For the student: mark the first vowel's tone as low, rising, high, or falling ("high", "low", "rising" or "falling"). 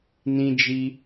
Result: high